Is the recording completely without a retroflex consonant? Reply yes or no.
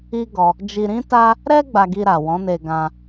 yes